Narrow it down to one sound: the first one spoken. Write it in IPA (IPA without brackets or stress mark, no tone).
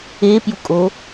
e